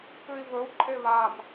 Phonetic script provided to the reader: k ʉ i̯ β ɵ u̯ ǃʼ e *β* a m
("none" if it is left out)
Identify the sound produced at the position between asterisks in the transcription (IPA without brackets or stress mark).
β